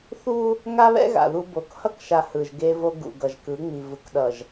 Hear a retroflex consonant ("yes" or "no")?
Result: no